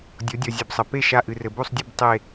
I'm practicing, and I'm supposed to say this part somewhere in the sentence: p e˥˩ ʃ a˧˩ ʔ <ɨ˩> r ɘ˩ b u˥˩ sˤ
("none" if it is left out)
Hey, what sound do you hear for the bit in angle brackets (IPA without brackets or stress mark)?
ɨ˩